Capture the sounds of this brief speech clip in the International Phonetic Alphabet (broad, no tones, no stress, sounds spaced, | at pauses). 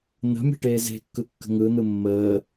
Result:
n̪ ə̤ mʲ e̤ ʈ eː z e̤ kː ɯ kː ə̤ ŋ ɯ n̪ ɯ mː əː